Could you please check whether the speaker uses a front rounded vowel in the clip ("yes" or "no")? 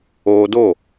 no